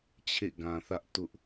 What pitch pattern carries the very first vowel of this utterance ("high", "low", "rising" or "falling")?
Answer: falling